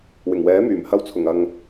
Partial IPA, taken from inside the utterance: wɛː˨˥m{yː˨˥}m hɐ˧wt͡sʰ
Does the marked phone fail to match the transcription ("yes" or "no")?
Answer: yes